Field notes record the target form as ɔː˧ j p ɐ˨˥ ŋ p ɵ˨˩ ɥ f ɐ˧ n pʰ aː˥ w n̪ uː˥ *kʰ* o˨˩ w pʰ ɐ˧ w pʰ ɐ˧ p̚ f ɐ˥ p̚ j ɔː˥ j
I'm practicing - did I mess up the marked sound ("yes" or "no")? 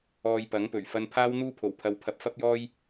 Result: yes